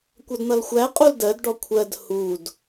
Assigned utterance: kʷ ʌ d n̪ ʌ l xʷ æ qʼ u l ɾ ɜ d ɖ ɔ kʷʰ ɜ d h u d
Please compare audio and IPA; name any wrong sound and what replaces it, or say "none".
ɾ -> d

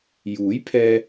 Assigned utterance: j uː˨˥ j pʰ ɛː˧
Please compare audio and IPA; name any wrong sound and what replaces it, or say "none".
none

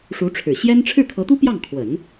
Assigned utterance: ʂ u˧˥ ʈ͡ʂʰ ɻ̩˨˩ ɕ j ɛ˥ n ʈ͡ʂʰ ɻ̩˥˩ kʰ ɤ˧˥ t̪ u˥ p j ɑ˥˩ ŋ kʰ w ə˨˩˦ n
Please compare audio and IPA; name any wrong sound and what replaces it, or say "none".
none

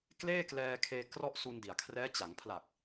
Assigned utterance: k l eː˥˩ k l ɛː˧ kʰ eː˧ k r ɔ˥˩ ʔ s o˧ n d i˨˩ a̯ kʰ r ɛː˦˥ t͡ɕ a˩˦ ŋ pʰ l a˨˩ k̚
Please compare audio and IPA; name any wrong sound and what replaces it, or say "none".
o˧ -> u˧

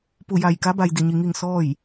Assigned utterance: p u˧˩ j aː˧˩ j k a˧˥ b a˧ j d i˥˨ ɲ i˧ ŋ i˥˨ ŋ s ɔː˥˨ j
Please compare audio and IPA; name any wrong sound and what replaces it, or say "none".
aː˧˩ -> a˧˩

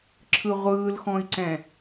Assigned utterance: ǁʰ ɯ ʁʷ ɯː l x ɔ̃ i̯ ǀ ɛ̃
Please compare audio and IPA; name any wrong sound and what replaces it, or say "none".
none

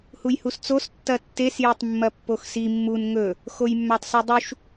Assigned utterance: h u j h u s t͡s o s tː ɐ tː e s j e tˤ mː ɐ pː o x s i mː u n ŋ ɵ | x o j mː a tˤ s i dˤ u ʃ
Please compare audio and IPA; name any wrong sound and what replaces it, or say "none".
none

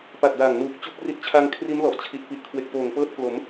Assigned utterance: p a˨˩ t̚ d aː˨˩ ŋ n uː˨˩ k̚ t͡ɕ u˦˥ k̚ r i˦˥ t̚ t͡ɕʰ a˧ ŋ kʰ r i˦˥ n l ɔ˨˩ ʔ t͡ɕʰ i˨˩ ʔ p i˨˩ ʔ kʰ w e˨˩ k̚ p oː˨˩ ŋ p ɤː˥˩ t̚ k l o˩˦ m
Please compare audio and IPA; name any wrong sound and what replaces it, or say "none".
none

